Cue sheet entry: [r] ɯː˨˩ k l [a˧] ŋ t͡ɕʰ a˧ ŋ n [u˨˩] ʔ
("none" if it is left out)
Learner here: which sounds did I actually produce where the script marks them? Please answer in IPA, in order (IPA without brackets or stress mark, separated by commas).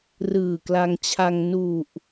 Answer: r, a˧, u˨˩